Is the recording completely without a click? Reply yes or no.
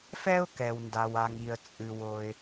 yes